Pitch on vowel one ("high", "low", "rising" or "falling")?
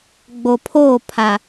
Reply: low